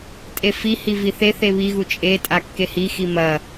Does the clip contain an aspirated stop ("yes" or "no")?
no